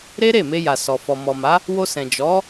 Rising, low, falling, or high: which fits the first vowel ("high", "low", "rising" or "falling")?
high